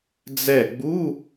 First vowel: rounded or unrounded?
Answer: unrounded